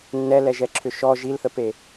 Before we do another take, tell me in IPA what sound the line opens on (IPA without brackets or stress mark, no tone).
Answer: nː